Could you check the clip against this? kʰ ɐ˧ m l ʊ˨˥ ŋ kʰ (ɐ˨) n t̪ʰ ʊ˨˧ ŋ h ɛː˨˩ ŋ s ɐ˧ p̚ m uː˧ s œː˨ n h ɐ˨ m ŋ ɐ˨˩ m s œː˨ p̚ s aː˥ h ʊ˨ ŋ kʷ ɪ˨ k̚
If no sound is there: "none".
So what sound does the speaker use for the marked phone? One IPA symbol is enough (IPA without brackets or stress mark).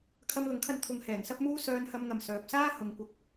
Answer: ɐ˧